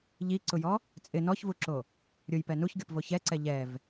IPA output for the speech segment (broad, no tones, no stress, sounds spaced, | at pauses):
ʎ i ǀ ʊ j ɔ | t͡sʼ ɪ n ɔ ç v u ǁ o | ɾʲ ʊ j p ɛ n u ç ɡʲ ɔ p v o ç ɛ ǀ ɛ ʎ ɛ v